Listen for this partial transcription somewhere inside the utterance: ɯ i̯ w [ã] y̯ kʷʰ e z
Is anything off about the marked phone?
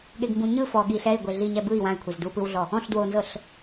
no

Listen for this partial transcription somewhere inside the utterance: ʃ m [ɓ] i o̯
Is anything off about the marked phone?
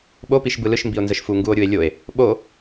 yes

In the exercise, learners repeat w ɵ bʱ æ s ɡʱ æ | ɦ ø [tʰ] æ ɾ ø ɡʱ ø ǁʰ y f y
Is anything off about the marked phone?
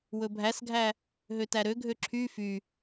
yes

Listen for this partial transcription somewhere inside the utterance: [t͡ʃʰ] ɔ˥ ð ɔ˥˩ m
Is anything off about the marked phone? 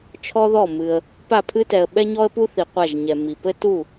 no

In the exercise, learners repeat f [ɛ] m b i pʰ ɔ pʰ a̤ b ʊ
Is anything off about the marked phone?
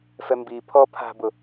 no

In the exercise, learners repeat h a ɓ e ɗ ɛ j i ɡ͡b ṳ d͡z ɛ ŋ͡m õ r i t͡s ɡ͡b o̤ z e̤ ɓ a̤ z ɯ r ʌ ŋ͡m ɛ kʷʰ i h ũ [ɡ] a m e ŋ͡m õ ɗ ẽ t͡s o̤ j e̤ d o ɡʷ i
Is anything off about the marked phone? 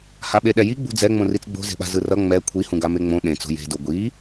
no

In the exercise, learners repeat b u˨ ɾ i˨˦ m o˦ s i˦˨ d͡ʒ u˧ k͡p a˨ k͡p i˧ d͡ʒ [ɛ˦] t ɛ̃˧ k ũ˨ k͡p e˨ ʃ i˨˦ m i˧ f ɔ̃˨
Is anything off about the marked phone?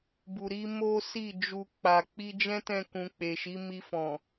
yes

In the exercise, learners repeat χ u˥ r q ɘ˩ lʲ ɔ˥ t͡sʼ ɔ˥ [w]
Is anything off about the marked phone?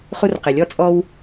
no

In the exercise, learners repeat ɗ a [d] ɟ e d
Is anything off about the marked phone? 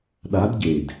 no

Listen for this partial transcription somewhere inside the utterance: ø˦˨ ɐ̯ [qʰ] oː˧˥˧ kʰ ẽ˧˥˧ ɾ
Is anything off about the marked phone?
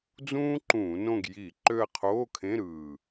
no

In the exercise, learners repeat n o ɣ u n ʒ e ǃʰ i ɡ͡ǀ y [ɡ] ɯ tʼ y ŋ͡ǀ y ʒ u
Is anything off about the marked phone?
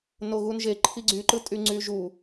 yes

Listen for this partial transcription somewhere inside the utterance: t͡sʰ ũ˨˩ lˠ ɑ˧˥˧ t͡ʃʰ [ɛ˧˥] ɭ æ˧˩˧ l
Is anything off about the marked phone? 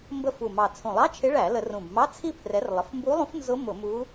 yes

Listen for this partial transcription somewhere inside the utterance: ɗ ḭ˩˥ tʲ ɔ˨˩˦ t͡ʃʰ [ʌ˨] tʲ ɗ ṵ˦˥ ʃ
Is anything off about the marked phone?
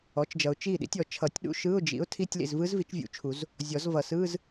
yes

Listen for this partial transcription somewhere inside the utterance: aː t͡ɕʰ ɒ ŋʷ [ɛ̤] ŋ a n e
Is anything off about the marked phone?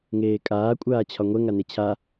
yes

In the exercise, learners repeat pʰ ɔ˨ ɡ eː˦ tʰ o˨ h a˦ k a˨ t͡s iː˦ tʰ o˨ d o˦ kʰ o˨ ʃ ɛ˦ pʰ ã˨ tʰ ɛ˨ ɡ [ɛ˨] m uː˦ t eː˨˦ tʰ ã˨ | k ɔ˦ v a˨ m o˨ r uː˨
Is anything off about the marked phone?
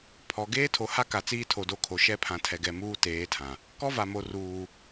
no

